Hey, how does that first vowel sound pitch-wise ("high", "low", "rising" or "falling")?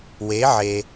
rising